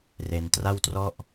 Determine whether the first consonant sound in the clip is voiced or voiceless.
voiced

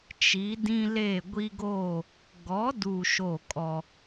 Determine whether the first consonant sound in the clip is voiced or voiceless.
voiceless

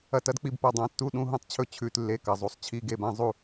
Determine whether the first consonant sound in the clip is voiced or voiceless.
voiceless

